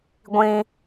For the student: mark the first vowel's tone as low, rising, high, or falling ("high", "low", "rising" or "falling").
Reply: high